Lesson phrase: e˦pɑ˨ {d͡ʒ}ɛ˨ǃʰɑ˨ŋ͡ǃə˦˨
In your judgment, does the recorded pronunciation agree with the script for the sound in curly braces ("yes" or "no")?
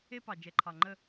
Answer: yes